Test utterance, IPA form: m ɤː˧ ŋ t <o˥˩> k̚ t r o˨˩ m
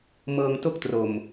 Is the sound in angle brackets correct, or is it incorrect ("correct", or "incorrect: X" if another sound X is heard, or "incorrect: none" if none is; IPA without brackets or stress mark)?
correct